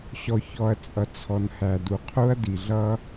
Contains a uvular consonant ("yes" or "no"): yes